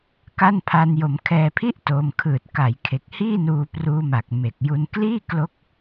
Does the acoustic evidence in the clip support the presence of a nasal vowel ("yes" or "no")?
no